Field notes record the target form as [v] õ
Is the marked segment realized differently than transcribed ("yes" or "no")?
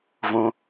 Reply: no